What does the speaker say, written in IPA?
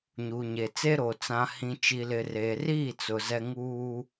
ɲ uː˨ ɲ e˨ t͡s e˦ ɾ o˨ t͡s ã˨ h ĩ˨ t͡ʃ i˨ l ɪ˨ r e˨ r iː˦˨ t͡s ʊ˨ z ɛ˦ ŋ uː˦

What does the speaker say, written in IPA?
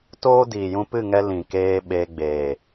t oː˦ d iː˨ j ũ˧ p ɨ˦˨ ŋ ɛ˧ l ĩ˨ k eː˧ ɓ e˧ ɡ͡b e˨

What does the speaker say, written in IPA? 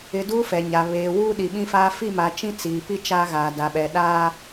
ɪ˨ d uː˦ f ɛ˨ ɲ a˨ β eː˨ w uː˦ ɗ i˨ ɓ ĩ˦ f aː˦ f i˦˨ m a˨ t͡ʃ ĩ˦ t͡s iː˨ p i˦ t͡ʃ aː˦ ɣ aː˨ d a˨ ɓ ɛ˨ ɗ aː˦

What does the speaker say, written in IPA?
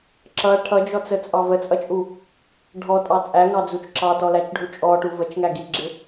ǁ ʌ ʈʰ ʌ d͡ʒ ɔ t͡s ə t͡sʼ ɑ v ə t͡sʼ ʌ t͡ʃʼ u | ɖʱ ɔ tʼ ɑ t͡sʼ æ ŋ ɑ d͡z u t͡ʃ ǁ ɑ t ɔ l æ t͡ʃ ɖʱ u t͡ʃʼ ɔ ʈ u v ə t͡ʃ ŋ æ ɡ i ɡ͡ǁ ɪ

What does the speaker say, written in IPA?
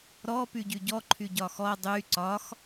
ɾ ɔ p y ɟ y ɟ ɔ ǃʰ y ɟ ɒ x ɔ dˤ y ǀ ɒ x

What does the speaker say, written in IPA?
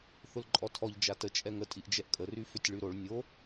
θ ʊ l ǃʼ ɔ tʰ ɔ ʎ d͡ʒ a t ə t͡ʃʼ ɛ ŋ ə tʼ i ʔ d͡ʒ ɛ ʔ kʼ ə r y f ʏ tʲ ɭ y ɾ o ɭ nʲ o

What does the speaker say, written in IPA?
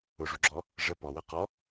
ʊ ʐ u ɡ͡ǁ ɔ | ʐ ə p ɔ w ɜ q ɔ

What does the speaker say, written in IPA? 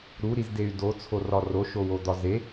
ɾ u ɾ i z d e y̯ d o t͡sʰ o r ɒ r o ʃ o w o d̪ ɒ z e

